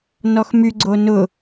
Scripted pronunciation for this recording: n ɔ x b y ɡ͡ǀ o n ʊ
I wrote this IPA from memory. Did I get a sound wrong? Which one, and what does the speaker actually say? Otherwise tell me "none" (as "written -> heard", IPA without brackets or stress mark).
b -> m